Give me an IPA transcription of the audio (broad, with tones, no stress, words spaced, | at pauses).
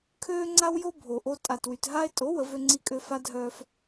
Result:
kʰøː˦ŋ͡ǀa˦wjo˦ bʱo˨ʔo˦ tʼa˨twy˨tɦa˦e̯ tʼo˨˦ wə˨˦vø˦ŋ͡ǀi˦kʼø˦ fa˦dʱœː˦f